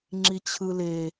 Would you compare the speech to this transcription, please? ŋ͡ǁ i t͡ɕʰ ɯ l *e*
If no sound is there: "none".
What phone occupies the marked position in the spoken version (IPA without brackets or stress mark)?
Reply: e